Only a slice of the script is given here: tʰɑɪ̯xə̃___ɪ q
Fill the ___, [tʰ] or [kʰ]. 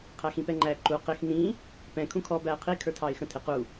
tʰ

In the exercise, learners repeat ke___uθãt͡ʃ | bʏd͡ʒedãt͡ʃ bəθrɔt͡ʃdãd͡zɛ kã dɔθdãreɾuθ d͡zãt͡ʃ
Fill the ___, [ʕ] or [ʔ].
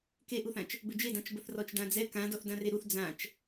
ʔ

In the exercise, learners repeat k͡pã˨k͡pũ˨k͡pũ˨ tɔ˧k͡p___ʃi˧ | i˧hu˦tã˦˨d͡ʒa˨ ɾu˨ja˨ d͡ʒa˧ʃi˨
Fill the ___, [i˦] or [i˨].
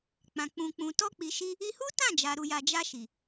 i˨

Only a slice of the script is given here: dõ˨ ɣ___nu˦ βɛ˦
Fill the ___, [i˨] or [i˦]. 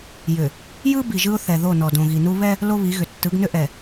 i˨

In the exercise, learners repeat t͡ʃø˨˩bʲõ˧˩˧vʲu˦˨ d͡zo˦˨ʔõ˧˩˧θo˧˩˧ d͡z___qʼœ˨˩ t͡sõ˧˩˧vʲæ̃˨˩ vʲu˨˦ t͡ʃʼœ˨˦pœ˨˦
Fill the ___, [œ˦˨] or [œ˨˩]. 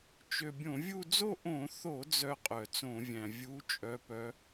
œ˦˨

